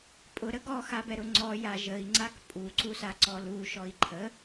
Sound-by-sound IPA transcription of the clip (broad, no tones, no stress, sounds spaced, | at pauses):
pʼ ʊ ɾ ə ɡ ɔ x a b ɛ ɾ ʊ ŋ͡ǀ ɔ j a ʒ ə i̯ ŋ͡ǀ a k pʼ u ǀ u s a ǀ ɔ l u ʃ ɔ i̯ ǃʰ ə